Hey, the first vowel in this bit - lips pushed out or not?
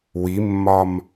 no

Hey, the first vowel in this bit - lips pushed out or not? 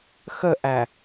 no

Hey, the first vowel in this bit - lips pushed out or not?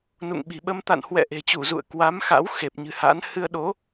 yes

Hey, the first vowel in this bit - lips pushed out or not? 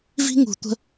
no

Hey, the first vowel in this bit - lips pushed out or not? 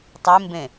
no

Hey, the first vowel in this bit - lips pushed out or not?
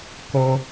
yes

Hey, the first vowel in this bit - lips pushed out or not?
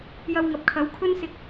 no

